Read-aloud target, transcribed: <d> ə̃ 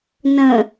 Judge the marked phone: incorrect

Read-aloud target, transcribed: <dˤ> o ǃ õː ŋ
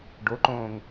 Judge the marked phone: incorrect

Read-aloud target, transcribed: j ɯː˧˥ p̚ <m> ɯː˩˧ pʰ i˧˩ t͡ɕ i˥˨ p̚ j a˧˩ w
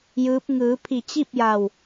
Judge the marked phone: incorrect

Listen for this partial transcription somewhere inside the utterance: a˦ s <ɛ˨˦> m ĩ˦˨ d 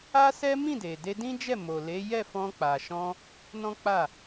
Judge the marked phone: incorrect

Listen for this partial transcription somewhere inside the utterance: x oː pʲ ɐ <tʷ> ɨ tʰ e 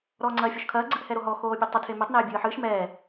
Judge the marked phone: incorrect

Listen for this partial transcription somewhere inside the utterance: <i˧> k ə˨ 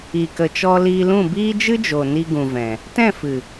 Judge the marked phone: incorrect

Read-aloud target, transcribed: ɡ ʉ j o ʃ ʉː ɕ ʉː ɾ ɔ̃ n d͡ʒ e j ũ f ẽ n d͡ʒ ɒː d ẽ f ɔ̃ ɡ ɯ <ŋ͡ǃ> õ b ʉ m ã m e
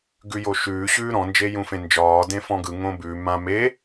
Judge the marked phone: incorrect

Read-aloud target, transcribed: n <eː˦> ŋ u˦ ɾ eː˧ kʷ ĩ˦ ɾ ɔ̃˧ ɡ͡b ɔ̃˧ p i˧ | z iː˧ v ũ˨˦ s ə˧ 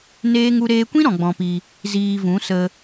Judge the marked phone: correct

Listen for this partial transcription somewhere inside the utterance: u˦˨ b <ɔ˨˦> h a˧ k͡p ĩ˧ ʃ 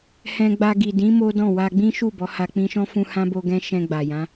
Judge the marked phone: correct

